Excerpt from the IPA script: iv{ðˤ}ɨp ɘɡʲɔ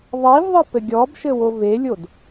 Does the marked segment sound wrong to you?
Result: no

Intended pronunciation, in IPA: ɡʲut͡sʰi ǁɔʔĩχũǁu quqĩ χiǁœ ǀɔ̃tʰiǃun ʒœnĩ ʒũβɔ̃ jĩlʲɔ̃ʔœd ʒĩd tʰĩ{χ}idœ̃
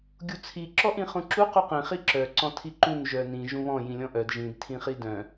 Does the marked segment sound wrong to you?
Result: no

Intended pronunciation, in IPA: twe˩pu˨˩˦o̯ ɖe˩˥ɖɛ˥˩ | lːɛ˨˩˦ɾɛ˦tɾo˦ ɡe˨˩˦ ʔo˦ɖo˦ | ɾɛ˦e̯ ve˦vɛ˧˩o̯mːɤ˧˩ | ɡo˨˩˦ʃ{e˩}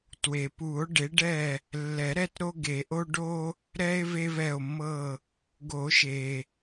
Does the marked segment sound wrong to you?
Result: no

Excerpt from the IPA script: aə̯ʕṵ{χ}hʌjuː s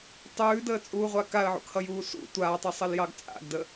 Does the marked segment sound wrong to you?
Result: yes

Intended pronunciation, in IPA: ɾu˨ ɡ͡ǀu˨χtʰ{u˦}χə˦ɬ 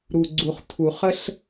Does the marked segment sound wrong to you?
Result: yes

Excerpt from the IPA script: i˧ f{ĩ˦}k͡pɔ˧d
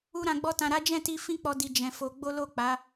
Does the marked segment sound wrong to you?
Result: no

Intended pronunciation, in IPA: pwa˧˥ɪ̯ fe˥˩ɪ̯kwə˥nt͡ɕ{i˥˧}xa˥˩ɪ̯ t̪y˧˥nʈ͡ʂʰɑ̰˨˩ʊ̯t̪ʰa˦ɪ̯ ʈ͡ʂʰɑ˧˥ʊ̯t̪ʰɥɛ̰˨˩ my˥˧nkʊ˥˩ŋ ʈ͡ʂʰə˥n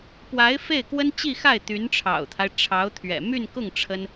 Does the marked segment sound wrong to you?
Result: no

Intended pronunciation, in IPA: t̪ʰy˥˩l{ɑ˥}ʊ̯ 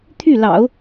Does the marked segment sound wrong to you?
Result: yes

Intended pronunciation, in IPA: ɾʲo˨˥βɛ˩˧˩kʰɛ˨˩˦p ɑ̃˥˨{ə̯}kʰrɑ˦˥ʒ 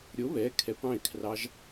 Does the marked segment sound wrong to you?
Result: yes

